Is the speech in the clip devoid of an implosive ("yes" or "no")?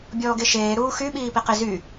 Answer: no